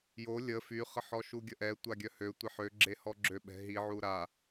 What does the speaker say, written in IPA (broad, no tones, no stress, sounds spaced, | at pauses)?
j o lʲ ə f y χ ə ħ ɔ ʃ u ɡʲ ə ʔ ɛ tʷ a ɡʲ œ h ø tʷ e ħ ø ɡ͡ǁ e h ɔ ɡ͡ǁ ø ɓ ɛ̤ ɦ i ʕ u ɾ a